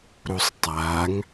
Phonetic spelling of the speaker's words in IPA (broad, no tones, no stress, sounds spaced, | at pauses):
ɾ u sˤ tˤ a ŋ